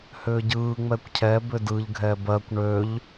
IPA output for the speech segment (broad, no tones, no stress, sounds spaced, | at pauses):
h ʏː ɟ ɯː ŋ͡m ɛ kʷ cʰ ɛ b ʏ d ɯ ʎ ɡʱ ɛ b ɜ kʷ ɳ ø ʎ